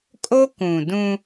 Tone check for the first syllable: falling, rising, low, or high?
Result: high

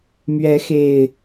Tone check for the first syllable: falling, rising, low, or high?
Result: rising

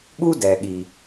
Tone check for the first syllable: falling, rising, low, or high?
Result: high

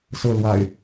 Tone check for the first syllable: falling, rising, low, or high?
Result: falling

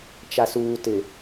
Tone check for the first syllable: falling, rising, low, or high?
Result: low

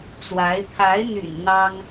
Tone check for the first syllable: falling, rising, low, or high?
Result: rising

